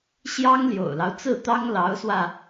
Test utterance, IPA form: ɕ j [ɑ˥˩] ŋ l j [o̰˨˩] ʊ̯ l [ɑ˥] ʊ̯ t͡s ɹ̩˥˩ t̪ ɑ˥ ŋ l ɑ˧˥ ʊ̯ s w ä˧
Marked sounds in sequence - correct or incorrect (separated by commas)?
incorrect, correct, incorrect